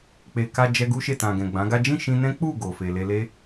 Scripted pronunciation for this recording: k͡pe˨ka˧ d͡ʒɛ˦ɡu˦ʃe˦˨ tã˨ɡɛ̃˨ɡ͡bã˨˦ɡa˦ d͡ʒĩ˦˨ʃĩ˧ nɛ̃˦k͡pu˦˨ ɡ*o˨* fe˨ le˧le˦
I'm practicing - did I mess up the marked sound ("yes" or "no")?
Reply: no